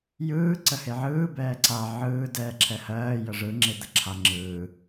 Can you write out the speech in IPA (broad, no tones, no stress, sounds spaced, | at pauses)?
j ɯː ǀ ə h e ʕ ɯː b ɛː ǀ a ʕ ɯː d ɛː ǁʰ ɛ h ɜː j ə ʐ ɯ ŋ͡ǁ e d̪ ə ǁʰ a ŋ͡ǁ ɯː